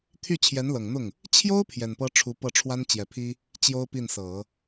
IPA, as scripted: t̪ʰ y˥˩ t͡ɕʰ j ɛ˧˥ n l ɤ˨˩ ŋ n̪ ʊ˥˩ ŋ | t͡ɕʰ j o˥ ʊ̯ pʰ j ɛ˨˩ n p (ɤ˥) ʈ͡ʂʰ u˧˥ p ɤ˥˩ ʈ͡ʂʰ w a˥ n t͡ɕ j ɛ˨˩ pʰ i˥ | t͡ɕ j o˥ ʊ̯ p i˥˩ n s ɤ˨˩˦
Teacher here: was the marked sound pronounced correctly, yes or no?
yes